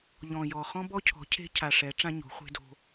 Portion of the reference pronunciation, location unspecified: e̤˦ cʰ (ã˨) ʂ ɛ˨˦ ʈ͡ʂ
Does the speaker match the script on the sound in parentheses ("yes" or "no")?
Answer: no